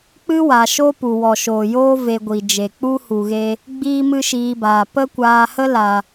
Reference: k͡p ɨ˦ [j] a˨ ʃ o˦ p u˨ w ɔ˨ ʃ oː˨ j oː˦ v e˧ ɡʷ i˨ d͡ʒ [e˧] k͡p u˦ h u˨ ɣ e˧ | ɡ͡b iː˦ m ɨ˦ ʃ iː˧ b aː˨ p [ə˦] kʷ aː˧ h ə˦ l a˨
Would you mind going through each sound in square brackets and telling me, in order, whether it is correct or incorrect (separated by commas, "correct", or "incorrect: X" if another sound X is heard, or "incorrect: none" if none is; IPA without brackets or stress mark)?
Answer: incorrect: w, incorrect: e˨, correct